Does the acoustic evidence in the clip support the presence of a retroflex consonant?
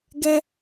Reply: no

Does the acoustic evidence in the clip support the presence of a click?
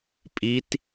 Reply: no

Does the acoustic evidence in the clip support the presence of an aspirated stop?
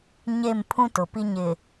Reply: yes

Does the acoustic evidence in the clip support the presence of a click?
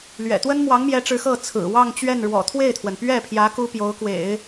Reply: no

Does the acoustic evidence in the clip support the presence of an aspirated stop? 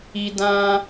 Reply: no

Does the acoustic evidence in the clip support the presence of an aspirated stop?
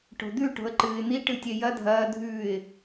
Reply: no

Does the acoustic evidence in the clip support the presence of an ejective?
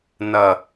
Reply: no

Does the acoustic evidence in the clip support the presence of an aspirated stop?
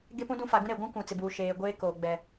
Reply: no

